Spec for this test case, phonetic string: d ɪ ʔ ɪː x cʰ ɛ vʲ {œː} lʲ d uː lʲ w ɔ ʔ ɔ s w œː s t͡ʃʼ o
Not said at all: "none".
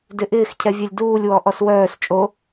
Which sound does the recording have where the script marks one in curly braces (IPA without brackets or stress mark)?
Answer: œ